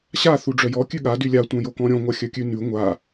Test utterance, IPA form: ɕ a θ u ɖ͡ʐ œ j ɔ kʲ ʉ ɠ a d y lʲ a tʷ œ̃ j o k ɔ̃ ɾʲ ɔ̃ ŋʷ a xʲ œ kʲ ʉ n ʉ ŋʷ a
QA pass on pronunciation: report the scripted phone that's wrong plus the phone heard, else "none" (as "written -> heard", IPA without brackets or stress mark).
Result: none